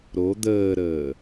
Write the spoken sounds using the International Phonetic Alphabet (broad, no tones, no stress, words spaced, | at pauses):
ɾo d̪əːɾəː